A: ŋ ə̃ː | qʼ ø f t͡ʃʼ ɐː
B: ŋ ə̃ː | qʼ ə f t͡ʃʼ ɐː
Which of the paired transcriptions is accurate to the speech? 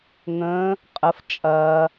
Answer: B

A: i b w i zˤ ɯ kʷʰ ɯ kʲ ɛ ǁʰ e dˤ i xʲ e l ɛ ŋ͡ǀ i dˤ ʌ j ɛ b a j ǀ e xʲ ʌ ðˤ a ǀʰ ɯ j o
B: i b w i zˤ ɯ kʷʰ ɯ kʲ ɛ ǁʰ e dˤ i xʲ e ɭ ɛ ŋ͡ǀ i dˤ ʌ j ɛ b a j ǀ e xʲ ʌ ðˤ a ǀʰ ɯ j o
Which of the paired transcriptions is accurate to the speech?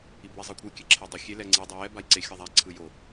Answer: A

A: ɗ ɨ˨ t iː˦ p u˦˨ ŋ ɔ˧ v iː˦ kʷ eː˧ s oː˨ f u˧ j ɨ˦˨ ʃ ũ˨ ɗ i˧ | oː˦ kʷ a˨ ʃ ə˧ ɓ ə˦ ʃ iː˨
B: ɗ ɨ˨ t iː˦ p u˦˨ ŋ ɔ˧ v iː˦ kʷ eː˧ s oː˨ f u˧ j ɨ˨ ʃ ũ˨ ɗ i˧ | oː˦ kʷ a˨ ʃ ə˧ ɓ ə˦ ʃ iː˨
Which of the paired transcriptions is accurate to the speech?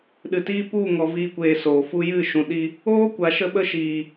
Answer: A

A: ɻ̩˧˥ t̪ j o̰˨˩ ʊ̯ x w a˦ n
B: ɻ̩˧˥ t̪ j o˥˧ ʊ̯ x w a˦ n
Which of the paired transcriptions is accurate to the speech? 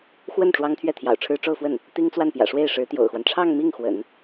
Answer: A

